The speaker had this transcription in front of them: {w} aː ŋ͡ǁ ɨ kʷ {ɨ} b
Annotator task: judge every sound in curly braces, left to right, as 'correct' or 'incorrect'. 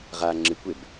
incorrect, incorrect

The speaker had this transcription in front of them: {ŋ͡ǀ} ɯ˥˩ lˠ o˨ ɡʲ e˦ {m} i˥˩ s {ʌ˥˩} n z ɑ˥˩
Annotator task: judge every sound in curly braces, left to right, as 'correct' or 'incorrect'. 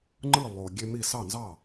incorrect, correct, incorrect

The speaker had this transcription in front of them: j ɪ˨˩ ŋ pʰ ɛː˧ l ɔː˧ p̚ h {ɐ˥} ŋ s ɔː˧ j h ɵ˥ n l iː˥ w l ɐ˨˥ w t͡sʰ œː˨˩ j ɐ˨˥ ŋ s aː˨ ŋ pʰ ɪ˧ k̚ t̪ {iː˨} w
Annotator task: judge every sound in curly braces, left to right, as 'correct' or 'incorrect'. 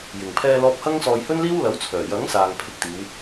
correct, incorrect

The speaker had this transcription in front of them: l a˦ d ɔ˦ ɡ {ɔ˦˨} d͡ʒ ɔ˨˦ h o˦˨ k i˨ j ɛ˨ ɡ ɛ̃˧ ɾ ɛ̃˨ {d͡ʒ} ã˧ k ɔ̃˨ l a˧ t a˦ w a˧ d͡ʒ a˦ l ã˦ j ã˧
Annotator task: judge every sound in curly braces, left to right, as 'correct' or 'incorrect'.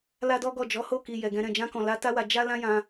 correct, correct

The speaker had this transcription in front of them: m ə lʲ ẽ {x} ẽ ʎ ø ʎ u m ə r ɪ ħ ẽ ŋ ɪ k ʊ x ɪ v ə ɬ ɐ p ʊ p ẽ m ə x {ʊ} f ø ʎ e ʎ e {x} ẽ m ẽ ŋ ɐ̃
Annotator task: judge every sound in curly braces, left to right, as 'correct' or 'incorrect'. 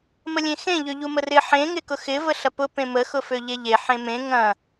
correct, correct, incorrect

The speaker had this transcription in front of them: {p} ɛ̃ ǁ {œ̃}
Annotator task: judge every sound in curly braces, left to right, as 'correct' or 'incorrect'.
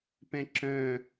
correct, correct

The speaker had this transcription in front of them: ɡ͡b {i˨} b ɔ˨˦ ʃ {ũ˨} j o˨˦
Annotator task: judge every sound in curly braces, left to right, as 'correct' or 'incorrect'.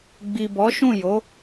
correct, incorrect

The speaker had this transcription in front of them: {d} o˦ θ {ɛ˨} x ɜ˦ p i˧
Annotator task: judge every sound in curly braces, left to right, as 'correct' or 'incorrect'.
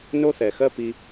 incorrect, correct

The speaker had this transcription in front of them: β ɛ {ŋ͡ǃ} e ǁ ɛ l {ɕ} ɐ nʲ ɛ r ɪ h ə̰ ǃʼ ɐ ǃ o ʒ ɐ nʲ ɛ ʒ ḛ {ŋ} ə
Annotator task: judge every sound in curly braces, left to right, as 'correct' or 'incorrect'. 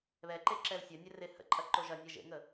incorrect, incorrect, correct

